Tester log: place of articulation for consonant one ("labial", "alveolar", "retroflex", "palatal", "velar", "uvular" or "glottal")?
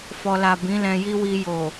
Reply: labial